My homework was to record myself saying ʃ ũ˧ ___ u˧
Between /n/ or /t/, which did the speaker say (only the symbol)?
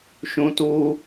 t